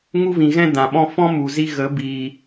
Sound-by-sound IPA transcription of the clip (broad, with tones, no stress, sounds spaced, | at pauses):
ŋ u˦ v ĩ˨ ɣ ɛ̃˦ d ã˨ ɓ ɔ̃˦ f ɔ̃˦ m u˨ z i˦ ɣ ə˨˦ b iː˨